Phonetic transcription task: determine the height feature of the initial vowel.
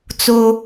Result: mid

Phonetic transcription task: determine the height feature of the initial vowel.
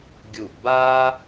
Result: high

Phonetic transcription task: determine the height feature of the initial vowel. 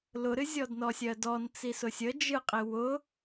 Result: high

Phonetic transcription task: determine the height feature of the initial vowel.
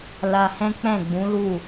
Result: low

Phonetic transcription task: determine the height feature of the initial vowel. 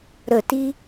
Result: mid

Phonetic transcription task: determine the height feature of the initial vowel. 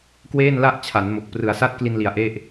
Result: mid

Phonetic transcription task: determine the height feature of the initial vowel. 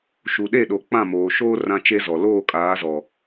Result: high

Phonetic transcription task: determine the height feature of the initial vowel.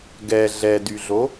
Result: mid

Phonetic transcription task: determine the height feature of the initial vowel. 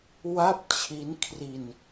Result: low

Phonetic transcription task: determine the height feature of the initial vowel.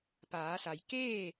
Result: low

